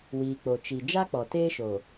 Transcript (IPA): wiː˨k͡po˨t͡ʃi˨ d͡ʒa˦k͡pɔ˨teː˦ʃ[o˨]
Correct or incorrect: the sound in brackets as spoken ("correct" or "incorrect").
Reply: correct